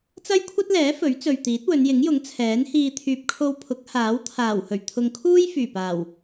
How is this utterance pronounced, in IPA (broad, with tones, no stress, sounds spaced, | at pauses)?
t͡s ɐ˥ j kʷʰ ɐ˥ t̚ l ɛː˨˥ f ɵ˨˥ ɥ t͡s ɵ˨ ɥ t̪ iː˨˥ t̚ w ɵ˨˧ n j ɪ˨˥ ŋ j ʊ˨˥ ŋ t͡sʰ ɛː˨˥ n h iː˧ t̪ʰ yː˨ p̚ kʰ o˧ w pʰ ʊ˨˥ k̚ h aː˨˥ w t̪ʰ aː˨˩ w h ɵ˨˩ ɥ t̪ʰ ʊ˨ ŋ kʰ uː˥ j f yː˨˩ p aː˨˩ w